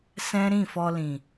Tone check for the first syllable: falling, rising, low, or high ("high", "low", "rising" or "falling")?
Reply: high